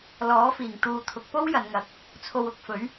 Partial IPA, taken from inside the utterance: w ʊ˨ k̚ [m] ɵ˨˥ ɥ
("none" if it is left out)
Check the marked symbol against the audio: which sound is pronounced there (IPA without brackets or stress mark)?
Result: f